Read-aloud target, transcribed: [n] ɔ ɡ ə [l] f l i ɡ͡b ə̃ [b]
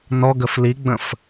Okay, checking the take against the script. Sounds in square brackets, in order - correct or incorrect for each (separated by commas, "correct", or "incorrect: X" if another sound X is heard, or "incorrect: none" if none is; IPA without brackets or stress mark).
correct, incorrect: none, incorrect: f